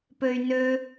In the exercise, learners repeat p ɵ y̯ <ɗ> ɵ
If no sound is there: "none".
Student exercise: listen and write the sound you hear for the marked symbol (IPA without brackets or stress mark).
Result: n